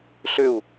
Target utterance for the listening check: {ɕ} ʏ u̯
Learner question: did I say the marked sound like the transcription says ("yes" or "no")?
no